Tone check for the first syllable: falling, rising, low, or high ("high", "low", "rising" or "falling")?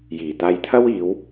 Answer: low